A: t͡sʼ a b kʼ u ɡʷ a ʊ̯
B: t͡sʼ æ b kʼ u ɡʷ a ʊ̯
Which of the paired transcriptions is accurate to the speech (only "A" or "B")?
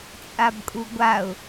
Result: A